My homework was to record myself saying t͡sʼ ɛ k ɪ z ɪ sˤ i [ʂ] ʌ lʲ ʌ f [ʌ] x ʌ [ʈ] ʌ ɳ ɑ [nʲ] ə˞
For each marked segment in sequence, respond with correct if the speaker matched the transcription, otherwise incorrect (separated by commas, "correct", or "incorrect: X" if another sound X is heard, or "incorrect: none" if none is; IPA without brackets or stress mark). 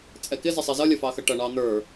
incorrect: z, incorrect: ɑ, correct, incorrect: n̪